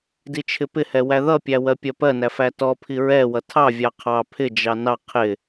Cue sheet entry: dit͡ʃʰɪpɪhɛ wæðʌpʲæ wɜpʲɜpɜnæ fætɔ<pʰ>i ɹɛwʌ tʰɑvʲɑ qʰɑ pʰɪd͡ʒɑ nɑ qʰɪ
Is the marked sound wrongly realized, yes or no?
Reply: no